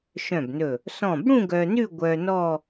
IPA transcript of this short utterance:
ʃ œ̃˧˩ b n ɵ˧˩ | s ɔ̃˧˩ b ɽ ũ˥˧ ɡ œ˧ n ʉ˥˧ ɡʷ œ˧ n ɔ˥˧

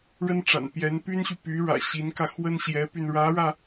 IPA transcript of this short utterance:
ɻ ə˥ n ʈ͡ʂ a̰˨˩ n p j ɛ˧˥ n p y˥ n ɕ y˨ p y˧˥ ɻ ä̰˨˩ ɕ i˧˥ n k ä˧ x w ə˥ n ɕ j ɛ˧˥ p y˧ n ɻ ä˧˥ ɻ ä˧

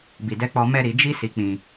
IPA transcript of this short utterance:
b i˨ d ɛ˧ k͡p ɔ˧ m ɛ˧ ɾ i˨ d͡ʒ i˧ s i˧ k͡p ĩ˧

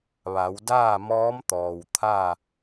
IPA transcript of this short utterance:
ʋ a˩˧ w d aː˥˨ m ɔː˧˥ m t̪ ɔː˩ w t̪ʰ a˥˨

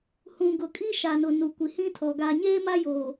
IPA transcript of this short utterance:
h ũ˨ ɡ ʊ˨ kʼ i˦ ʃ a˨ n ʊ˨ n u˨ kʷ i˨ h ĩ˦ tʰ ɔ˨ ɡ aː˨ ɲ eː˦ m a˦ j o˨

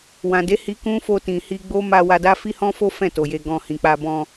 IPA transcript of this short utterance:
w ã˨ d e˨˦ h i˧ k ũ˦ f o˧ t ĩ˨ h i˧ ɡ͡b o˦ m a˧ w a˧ d a˦ f i˦ h ɔ̃˦ f o˦ f ɛ̃˦˨ t o˨ j e˧ ɡ ɔ̃˧ h ĩ˨ k͡p a˧ b ɔ̃˧

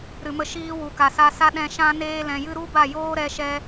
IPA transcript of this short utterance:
ɾ ɨ˨ m ə˧ ʃ iː˧ w u˨ k a˨ s a˧ s a˦ ɗ ɛ̃˧ ʃ ã˦ n eː˦ l ɛ̃˧ j ɨ˦ ɾ u˦ b a˦˨ j oː˦ ɾ ɛ˧ ʃ ɛ˧

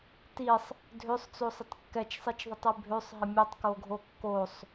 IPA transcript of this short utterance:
t i sˤ | dʱ ø sˤ t͡s o sˤ ə tˤ kː ɛ t͡ʃ sˤ i t͡ʃ ðˤ ə tˤ i bʱ ø sˤ ɦ ə mʲ ø tˤ k o ɡʱ o kː o sˤ

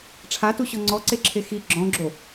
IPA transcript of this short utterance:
ʈ͡ʂʰ a t u ɕ ɔ ŋ͡ǀ ɔ ǀ e ǁʰ e x i ɡ͡ǁ ɔ̃ ɡ͡ǁ o

